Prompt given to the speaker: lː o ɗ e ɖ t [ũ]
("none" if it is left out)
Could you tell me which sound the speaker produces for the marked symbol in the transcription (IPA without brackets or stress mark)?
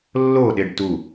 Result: u